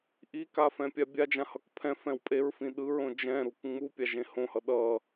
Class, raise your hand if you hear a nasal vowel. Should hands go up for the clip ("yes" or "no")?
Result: yes